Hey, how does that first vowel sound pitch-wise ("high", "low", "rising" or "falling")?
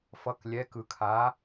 rising